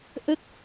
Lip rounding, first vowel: unrounded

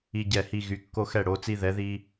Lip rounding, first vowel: unrounded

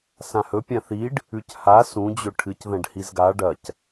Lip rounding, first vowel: unrounded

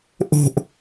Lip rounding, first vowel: rounded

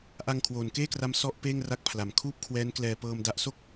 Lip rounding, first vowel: unrounded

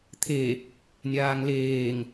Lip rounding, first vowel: unrounded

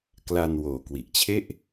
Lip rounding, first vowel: unrounded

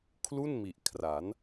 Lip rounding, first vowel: rounded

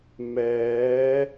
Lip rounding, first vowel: unrounded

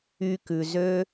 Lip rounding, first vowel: rounded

